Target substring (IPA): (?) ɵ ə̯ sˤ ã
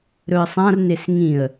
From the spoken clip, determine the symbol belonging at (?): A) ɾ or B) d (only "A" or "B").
A